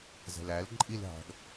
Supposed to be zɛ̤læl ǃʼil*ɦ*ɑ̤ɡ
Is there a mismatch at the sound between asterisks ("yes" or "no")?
no